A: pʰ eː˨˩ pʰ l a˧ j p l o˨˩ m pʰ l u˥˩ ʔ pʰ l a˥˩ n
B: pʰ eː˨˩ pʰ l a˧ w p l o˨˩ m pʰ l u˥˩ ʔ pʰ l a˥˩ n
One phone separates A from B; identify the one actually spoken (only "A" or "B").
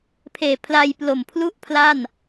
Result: A